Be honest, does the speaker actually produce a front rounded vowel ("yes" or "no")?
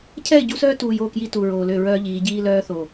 yes